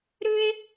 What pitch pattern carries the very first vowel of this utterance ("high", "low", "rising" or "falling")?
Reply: high